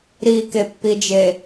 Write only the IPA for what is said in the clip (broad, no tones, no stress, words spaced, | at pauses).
ɾikepːid͡ʒe